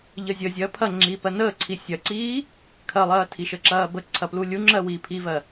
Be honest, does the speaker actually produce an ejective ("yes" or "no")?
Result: no